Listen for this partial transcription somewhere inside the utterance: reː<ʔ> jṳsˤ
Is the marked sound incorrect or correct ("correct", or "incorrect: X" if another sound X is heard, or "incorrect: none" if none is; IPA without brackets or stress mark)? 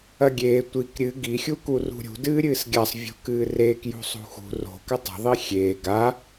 incorrect: k